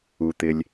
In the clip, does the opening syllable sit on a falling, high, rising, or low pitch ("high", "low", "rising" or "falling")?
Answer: low